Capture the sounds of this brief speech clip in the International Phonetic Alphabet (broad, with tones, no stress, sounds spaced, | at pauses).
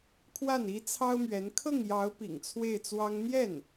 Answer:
kʰ w a˥˩ n i˥ t͡sʰ ɑ˥ ʊ̯ m ɥ ɛ˧˥ n kʰ ɤ˥˩ ŋ j ɑ˧˥ ʊ̯ p ḭ˨˩ ŋ t͡sʰ w e˥˩ ɪ̯ t͡s w ɑ˥ ŋ n̪ j ɛ˥˩ n